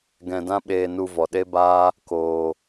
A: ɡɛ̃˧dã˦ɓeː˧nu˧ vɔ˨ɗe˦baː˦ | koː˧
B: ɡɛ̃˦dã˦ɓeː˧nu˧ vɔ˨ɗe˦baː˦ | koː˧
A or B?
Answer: A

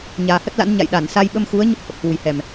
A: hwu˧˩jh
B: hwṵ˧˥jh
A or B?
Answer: A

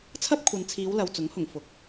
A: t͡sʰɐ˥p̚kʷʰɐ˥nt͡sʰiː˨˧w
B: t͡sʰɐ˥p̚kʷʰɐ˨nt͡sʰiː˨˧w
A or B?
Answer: B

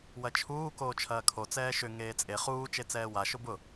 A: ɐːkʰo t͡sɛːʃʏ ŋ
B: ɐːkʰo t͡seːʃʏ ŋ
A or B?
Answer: A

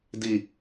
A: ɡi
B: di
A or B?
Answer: B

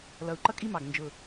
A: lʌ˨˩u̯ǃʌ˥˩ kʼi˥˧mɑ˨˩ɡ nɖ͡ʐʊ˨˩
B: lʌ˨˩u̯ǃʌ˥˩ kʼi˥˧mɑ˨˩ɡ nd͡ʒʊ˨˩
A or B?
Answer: B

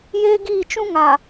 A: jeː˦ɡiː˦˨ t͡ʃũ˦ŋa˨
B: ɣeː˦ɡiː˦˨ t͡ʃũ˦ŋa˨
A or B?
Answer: A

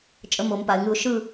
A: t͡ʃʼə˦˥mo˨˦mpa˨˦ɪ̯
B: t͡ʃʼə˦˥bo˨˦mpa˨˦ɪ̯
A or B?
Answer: A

